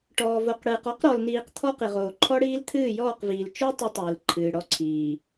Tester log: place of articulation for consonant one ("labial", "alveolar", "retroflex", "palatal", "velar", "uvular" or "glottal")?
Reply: retroflex